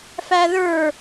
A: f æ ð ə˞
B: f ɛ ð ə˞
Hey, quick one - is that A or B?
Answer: A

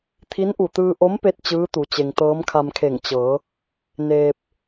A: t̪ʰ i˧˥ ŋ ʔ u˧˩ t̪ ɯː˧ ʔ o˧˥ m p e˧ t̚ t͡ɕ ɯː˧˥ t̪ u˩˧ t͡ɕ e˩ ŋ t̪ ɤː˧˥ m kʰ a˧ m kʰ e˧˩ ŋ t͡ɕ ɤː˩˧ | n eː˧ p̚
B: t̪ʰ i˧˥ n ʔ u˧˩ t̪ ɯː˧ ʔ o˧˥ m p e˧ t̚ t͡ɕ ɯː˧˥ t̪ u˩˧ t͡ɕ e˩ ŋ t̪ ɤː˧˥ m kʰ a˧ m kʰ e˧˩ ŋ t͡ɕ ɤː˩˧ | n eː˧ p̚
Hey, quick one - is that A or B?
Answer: B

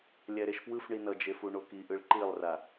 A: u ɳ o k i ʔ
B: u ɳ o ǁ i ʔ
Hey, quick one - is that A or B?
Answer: A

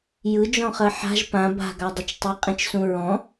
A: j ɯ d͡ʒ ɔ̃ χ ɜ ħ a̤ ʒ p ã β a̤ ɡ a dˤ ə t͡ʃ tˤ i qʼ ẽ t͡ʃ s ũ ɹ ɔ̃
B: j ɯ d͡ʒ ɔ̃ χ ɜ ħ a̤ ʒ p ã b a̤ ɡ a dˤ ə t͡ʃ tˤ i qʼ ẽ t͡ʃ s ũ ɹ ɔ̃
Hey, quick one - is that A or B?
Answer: B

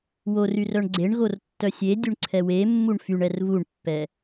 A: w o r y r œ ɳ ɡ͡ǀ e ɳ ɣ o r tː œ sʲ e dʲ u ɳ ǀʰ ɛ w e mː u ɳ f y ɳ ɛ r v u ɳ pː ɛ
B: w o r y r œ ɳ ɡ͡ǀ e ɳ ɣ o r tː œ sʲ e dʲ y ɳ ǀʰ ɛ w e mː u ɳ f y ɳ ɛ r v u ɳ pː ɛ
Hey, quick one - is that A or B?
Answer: A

